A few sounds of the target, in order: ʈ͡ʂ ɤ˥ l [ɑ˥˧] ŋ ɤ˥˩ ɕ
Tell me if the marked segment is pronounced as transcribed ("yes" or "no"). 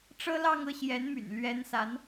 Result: yes